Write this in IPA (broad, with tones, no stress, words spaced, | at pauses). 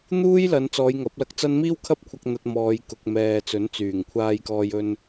n̪uː˥jlɐ˨˧n t͡sɔː˨˧jŋɐ˨˥p̚lɐ˧k̚t͡sɐ˥n miː˥wkʰɐ˥p̚kʷʰɐ˧k̚ n̪ɐ˧t̚mɔː˨˧j kʊ˨k̚mɛː˨t͡sɵ˨˥n t͡syː˨˩ŋkʷʰaː˧jkɔː˧jɵ˧n